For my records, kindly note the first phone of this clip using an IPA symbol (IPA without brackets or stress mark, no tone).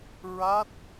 ɹ